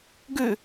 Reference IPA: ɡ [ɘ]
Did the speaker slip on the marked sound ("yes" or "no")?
yes